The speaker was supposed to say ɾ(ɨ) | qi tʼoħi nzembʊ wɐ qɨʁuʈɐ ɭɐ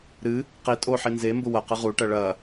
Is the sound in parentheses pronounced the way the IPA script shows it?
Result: yes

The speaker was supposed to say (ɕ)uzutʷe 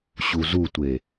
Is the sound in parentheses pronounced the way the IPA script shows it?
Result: yes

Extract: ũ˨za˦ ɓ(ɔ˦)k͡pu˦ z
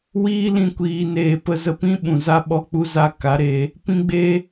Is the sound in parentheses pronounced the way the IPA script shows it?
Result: yes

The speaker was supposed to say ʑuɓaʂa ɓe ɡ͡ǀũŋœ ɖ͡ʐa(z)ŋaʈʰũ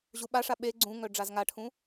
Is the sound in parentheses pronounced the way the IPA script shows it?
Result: yes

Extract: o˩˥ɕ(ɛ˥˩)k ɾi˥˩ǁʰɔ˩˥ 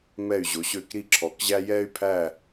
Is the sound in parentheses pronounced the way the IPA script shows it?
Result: no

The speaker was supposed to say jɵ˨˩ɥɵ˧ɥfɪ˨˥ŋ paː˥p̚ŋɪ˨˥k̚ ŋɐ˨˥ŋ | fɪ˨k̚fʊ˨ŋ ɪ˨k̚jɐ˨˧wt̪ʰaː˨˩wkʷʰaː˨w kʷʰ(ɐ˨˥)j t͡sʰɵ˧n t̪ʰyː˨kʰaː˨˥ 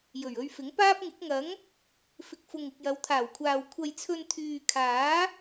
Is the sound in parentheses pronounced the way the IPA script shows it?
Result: no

